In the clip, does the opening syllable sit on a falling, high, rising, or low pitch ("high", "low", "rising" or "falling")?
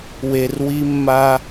low